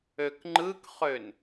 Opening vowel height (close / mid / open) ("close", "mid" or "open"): mid